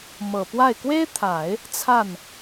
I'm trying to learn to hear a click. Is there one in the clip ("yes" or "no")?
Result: no